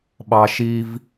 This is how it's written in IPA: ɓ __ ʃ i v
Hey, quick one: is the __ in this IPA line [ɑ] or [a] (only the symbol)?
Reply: ɑ